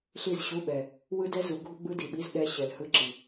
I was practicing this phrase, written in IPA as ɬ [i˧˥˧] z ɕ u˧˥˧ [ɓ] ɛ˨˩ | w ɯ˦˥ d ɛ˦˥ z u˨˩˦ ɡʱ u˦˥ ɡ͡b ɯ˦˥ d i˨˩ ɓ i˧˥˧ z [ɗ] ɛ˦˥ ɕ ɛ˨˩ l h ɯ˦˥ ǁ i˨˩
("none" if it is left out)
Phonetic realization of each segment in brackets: i˦˨, ɓ, ɗ

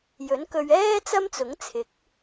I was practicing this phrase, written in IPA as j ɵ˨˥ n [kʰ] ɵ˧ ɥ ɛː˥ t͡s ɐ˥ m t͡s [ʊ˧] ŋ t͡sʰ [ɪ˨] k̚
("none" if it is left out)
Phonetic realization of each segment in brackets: k, ʊ˨˥, ɪ˨˥

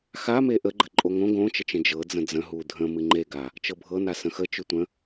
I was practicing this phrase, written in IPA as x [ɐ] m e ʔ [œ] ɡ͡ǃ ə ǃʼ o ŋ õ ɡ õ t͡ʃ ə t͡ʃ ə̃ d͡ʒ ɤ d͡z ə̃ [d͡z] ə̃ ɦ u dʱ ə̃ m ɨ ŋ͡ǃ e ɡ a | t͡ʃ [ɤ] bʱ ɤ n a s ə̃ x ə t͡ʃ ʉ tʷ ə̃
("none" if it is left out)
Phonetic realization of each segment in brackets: a, ə, d͡z, ɤ

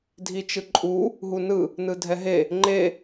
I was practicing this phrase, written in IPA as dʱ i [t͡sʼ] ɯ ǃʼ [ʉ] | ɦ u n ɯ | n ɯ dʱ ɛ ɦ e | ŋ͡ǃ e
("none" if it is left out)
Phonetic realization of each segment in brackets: t͡ʃ, u

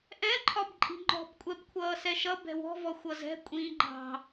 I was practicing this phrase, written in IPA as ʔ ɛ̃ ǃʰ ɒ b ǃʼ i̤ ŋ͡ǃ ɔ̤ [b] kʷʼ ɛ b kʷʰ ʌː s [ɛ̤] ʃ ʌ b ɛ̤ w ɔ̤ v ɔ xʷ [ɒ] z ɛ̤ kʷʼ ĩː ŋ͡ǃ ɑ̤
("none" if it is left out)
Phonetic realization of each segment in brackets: b, ɛ, ʌ

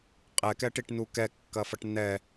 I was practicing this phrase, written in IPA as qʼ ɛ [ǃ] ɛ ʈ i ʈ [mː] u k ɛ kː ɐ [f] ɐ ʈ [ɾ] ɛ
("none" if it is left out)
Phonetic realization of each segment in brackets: k, n, f, n

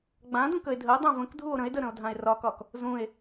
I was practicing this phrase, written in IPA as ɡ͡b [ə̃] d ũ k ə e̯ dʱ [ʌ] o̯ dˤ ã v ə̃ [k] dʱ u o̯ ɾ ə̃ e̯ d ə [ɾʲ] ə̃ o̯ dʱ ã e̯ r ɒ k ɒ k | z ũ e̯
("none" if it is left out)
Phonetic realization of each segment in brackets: ã, ə, k, ɾ

